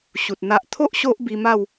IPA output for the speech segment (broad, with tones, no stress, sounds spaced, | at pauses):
ɕ u˨ t̚ n̪ a˦ ʔ t̪ʰ o˦ ʔ ɕ o˦ ʔ b i˧ m a˥˧ w